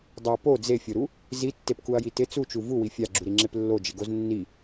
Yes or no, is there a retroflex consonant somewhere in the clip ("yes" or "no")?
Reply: no